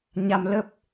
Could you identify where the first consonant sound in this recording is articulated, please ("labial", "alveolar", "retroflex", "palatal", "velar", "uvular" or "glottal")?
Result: palatal